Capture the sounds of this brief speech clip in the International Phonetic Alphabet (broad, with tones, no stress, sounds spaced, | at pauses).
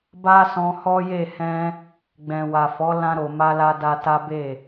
b a˦ s ɔ̃˧ h ɔ˦ j e˦˨ h ɛ̃˧ | ɡ͡b ɛ̃˨ w a˨ f ɔ˨˦ l ã˧ ɾ o˨ m a˧ l a˧ d a˧ t a˦ b e˦˨